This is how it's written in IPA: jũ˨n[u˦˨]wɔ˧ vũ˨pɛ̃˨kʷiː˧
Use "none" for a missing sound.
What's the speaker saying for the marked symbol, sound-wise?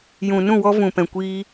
ũ˦˨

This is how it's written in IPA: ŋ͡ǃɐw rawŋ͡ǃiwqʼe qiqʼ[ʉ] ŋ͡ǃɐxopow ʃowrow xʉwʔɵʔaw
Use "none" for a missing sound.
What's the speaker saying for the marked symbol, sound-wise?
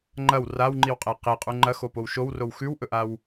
u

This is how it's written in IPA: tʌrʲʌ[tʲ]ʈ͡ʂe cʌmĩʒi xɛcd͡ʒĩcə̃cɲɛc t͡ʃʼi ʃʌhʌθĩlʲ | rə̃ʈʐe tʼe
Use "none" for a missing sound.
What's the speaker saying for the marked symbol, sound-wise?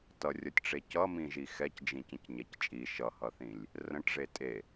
tʲ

